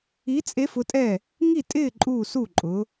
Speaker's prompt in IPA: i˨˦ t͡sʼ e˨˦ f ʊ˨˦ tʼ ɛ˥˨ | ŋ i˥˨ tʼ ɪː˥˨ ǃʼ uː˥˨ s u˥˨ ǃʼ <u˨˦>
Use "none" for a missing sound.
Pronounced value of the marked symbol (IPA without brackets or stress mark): ʊ˨˦